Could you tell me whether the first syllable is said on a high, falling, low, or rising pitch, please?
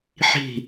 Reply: falling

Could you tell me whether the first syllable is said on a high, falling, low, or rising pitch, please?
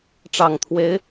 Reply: low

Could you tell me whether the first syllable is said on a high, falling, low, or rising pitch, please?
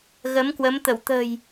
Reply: rising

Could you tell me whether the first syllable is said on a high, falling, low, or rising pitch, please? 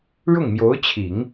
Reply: falling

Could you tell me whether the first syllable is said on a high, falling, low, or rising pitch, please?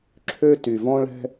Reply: high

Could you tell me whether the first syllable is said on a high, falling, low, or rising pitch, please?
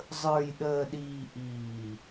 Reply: low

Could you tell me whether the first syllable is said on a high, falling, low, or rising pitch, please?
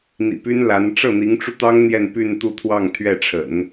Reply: low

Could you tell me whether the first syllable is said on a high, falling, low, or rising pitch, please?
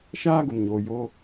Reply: high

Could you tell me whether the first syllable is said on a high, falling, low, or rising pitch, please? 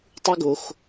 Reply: high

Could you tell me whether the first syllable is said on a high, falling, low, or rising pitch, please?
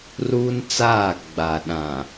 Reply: high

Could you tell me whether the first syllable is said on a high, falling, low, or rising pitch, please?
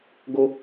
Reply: high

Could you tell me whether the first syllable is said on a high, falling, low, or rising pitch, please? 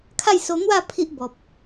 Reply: falling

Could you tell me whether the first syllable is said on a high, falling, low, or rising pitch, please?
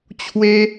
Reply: high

